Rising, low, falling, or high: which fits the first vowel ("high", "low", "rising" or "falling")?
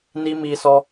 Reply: high